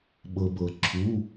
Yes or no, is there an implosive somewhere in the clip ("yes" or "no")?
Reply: yes